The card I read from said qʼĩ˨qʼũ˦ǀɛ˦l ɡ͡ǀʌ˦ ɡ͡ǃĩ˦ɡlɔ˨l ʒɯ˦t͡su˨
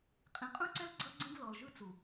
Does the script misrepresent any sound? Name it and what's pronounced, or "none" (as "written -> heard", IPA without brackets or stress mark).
ɡ͡ǃ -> ɡ͡ǀ